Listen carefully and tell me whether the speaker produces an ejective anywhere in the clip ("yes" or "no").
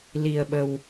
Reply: no